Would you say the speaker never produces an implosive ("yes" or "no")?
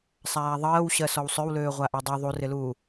yes